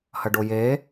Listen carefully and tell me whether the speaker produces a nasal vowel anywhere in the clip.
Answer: no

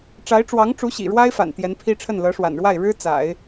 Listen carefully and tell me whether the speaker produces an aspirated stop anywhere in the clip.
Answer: yes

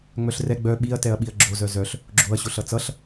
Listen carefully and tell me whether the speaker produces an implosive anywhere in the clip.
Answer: yes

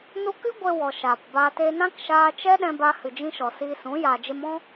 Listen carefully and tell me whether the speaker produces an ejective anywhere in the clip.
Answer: no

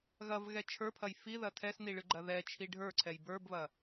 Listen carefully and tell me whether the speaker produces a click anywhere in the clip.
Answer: yes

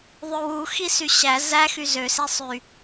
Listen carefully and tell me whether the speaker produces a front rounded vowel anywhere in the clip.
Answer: yes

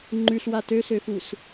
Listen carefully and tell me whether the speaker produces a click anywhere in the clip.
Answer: yes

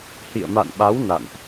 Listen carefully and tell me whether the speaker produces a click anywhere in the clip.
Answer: no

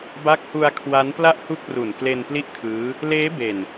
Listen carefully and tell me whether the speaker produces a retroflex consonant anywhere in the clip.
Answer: no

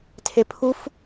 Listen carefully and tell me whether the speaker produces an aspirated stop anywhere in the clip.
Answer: yes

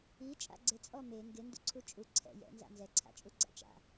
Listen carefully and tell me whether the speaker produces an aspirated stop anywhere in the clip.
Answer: yes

